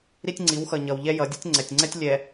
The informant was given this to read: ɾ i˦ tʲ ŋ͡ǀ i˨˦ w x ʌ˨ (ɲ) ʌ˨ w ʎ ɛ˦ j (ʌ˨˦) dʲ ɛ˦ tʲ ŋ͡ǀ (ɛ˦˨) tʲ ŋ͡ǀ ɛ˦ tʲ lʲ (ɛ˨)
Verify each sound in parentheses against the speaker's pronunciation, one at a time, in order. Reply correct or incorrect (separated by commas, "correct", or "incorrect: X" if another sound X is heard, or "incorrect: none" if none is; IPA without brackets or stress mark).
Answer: correct, correct, incorrect: ɛ˨, correct